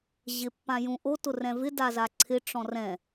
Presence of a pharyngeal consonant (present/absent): absent